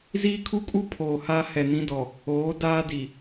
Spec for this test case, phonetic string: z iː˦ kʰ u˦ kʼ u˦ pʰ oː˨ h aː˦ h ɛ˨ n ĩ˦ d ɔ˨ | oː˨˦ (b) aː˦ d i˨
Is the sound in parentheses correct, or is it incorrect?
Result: incorrect: d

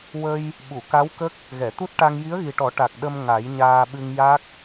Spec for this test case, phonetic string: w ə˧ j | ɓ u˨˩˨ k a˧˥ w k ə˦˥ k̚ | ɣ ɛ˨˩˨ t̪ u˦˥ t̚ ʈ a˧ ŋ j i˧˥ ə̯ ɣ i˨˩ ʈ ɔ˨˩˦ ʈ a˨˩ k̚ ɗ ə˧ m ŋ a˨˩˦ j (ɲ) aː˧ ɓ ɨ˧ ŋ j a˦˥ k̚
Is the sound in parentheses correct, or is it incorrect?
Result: correct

